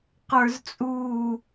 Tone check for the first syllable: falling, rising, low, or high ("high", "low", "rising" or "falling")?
high